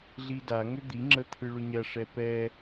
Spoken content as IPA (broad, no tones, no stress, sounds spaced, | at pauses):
ɮ i d a ŋ ʏ d̪ i ŋ͡ǁ ə t̪ʰ ɯ ɭ ʏ ɲ ɐ ʂ ɛ p ɛ